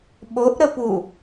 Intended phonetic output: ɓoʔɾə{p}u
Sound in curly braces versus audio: correct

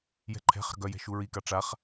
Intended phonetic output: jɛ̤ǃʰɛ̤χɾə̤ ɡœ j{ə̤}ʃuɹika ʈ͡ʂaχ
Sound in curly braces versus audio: incorrect: ɛ̤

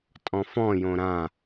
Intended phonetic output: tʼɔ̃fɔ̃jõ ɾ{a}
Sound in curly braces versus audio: incorrect: ã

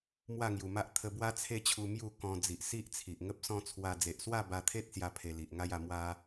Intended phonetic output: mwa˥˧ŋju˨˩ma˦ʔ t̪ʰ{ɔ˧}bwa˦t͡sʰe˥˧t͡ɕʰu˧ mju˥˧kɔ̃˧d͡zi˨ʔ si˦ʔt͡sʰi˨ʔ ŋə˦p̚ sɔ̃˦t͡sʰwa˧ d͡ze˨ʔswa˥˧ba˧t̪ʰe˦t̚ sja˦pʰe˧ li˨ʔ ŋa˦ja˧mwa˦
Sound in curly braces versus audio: incorrect: ə˧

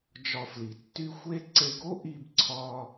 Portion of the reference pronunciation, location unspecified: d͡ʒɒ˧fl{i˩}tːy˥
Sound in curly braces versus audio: correct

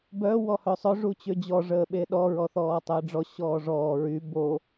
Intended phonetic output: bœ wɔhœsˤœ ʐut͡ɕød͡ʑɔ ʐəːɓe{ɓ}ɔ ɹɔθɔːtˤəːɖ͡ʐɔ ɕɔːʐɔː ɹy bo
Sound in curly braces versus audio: incorrect: ɗ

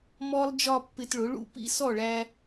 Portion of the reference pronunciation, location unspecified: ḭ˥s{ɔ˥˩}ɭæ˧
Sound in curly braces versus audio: correct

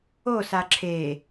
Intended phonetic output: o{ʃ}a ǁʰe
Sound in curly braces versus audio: incorrect: s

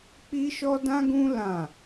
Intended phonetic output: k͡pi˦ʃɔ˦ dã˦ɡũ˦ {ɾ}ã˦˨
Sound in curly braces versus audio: incorrect: l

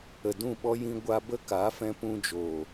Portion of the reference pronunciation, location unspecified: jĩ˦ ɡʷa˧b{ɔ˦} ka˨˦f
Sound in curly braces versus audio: incorrect: ə˦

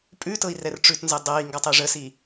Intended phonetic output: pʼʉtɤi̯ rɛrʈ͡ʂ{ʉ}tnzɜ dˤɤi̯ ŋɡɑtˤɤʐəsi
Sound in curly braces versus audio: correct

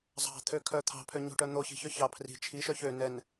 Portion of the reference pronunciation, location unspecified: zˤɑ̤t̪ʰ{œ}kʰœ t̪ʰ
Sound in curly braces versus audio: incorrect: ø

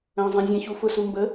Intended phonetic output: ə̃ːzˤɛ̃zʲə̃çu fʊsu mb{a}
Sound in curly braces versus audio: incorrect: ə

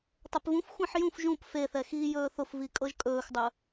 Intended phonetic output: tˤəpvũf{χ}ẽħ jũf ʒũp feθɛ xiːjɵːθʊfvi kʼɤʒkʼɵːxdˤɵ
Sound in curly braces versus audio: incorrect: xʷ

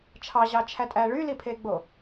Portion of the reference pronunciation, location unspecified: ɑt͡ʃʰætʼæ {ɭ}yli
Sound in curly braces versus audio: correct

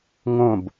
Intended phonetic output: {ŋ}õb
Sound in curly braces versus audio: correct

